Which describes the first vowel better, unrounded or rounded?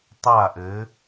unrounded